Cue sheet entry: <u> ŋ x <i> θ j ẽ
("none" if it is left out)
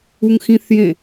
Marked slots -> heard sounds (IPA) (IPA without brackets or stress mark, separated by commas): u, ĩ